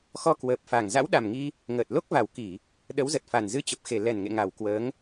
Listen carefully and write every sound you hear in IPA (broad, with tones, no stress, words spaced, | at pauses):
xɔ˧ kwəː˨˩p̚fa˨˩ŋ za̰˧˥wɗa˨˩mŋi˧ | ŋəː˨˩t̚lo˦˥k̚va˨˩wki˧˩˨ | ɗə˨˦wzə˨˩t̚fa˨˩n zɨ˧t͡ɕə˨˩p̚xe˨˩ lɛ˨˩nŋḛ˧˨ ŋa˨˩wkwəː˨˦ŋ